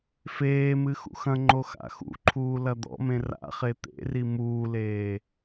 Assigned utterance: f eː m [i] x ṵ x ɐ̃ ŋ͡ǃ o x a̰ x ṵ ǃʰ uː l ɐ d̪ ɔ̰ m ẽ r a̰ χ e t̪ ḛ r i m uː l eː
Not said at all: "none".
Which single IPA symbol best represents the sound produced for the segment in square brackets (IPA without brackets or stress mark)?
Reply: ɨ